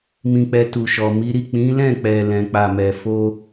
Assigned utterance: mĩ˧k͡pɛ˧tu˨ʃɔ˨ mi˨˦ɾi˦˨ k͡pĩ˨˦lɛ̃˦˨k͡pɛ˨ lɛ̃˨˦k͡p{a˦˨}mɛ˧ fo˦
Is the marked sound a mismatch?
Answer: no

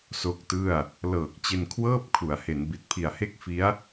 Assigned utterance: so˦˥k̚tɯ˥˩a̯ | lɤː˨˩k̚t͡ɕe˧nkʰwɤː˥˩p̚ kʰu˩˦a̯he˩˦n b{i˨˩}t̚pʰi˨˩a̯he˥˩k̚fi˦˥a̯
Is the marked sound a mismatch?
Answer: no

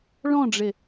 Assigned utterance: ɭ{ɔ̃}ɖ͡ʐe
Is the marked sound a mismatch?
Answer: no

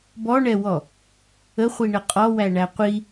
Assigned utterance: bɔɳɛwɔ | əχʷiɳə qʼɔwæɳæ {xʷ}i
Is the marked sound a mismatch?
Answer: yes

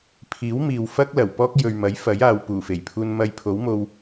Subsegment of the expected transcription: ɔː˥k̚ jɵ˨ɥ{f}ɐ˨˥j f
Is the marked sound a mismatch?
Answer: yes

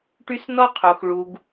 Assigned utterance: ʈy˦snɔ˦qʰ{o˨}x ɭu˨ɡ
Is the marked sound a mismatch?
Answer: no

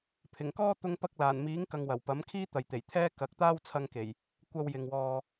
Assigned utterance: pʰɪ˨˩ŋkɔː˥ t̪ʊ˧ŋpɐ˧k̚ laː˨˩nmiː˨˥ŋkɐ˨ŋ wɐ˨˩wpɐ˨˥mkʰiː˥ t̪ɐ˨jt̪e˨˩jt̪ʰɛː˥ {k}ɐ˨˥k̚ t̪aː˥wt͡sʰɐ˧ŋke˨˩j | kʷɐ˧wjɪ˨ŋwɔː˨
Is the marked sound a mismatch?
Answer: no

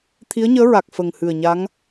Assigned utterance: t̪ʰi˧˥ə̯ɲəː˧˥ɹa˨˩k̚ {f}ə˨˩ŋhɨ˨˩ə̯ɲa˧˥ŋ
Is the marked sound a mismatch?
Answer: no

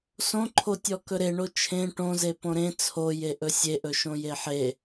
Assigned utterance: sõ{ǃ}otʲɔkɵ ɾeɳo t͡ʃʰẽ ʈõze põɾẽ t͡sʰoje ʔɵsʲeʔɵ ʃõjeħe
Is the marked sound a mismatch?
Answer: yes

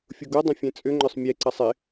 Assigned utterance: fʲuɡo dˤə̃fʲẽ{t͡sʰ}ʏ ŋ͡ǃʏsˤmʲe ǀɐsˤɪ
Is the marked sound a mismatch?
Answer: yes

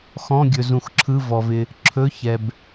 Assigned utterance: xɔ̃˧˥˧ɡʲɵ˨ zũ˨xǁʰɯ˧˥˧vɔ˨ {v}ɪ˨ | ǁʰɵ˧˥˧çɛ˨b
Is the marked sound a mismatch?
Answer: no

